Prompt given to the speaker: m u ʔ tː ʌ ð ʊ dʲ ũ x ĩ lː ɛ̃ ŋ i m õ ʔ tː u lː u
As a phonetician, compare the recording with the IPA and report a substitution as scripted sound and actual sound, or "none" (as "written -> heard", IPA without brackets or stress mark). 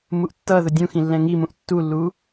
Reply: õ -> ũ